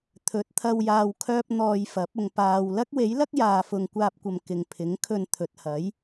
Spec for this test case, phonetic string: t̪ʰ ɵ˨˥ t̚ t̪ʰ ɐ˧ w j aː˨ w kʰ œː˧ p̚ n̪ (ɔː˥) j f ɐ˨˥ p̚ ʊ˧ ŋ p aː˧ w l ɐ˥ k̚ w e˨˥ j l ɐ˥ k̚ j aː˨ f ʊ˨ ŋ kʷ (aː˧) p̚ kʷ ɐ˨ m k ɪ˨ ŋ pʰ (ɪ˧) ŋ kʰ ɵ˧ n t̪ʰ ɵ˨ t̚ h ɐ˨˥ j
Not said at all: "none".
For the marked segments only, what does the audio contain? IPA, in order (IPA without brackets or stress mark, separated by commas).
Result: ɔː˨, aː˧, ɪ˨˥